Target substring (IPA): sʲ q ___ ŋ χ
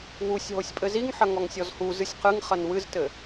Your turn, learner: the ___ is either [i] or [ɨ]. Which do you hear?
ɨ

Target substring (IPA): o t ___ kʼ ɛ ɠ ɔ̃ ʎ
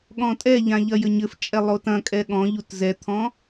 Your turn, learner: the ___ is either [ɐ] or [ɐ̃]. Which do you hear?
ɐ̃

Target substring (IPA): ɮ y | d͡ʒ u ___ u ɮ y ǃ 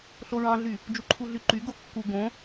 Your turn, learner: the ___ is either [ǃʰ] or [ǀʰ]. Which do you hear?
ǃʰ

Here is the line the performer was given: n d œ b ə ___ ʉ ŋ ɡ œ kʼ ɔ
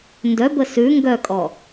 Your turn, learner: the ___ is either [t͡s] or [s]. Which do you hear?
s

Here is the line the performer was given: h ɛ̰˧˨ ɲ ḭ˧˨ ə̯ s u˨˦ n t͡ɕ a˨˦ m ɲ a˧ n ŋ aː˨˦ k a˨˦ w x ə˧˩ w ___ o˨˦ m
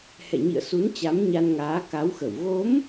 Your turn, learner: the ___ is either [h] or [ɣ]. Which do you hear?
ɣ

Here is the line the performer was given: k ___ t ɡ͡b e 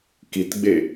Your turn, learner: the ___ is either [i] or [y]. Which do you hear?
i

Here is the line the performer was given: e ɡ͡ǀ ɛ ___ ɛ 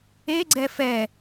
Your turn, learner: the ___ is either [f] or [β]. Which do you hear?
f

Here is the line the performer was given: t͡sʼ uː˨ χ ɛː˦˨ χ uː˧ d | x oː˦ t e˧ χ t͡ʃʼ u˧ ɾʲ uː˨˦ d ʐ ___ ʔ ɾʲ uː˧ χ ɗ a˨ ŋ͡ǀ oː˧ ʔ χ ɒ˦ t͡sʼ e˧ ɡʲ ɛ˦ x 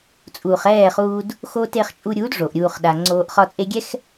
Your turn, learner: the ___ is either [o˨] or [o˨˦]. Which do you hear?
o˨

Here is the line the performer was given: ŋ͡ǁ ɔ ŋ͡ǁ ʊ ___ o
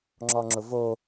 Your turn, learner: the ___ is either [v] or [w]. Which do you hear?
v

